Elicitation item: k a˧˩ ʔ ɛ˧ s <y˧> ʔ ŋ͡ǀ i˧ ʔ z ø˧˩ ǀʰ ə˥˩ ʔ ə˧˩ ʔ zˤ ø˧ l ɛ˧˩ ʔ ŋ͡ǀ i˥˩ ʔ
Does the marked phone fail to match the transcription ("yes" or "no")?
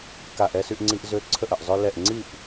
no